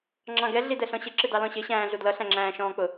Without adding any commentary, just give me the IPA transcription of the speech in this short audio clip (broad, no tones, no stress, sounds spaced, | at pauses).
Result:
ŋ͡ǁ ɑ̃ ɡ ɛ ɮ i d ɛ ɬ ɔ̃ ɕ ɪ ǁ ɪ d ɑ l ɔ̃ ɕ ɪ ɕ æ̃ː ɮ u d l ʌ ɬ æ̃ ŋ͡ǁ æ̃ː ʃ ɔ̃ː k͡p ʊ